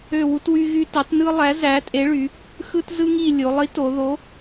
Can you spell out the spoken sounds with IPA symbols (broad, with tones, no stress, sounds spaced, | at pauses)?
ø˦˨ w u˦ t w y˦ ɣ y˦ t ɑ˨˥ t n ɯ˦ lˠ æ˨˥ z æ˨˥ tʼ e˨˥ ɭ y˩˧ | x ɯ˦ t z ɯ˦ ŋ i˦˨ lʲ o˩˧ lˠ i˨˥ t o˩˧ ð o˨˥